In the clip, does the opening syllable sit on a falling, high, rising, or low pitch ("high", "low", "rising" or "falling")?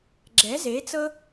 rising